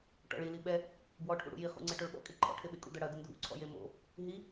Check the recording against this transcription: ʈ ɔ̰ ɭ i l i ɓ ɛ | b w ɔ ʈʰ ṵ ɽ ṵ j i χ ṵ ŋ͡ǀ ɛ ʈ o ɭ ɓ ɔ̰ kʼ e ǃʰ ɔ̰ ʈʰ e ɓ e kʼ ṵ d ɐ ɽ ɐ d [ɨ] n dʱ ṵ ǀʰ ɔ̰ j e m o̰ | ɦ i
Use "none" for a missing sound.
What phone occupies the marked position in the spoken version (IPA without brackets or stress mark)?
ɨ